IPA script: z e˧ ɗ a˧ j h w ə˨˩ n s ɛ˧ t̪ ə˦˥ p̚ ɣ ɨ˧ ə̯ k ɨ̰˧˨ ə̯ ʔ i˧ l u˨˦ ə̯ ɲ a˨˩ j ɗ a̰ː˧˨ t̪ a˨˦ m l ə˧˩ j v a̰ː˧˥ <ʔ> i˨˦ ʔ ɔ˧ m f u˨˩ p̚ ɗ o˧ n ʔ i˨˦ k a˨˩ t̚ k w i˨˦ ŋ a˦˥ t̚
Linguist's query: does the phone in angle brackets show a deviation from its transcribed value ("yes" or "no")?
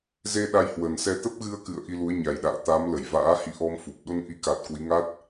yes